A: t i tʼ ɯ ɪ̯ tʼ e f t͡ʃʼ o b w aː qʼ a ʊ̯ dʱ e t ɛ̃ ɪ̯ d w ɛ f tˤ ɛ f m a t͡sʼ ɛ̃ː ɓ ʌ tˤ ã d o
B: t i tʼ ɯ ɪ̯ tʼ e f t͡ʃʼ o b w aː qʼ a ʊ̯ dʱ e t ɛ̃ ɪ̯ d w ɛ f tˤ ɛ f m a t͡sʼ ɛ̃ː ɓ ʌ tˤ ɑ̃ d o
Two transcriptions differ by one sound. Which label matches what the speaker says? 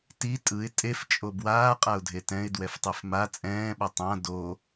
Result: A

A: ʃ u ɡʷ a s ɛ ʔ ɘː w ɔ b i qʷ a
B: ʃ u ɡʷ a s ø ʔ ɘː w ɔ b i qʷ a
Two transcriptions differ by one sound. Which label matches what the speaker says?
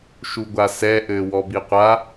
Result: A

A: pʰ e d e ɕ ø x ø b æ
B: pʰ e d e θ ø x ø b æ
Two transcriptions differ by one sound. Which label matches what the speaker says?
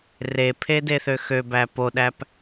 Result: B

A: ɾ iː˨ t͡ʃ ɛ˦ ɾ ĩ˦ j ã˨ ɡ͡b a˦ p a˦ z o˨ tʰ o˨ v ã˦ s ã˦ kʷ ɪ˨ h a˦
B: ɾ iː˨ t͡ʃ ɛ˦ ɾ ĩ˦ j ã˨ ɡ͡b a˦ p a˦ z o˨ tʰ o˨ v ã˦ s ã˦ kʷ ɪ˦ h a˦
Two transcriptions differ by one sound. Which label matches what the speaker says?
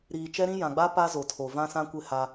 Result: B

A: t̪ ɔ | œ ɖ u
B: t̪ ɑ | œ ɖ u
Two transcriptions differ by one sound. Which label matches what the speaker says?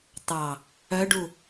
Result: B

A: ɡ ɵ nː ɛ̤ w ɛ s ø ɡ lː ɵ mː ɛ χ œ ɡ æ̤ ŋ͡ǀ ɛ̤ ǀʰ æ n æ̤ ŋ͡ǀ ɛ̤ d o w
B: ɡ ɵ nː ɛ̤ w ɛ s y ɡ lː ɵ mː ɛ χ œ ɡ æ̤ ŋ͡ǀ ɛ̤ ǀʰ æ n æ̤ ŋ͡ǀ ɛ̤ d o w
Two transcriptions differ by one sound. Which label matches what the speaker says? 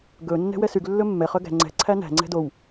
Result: B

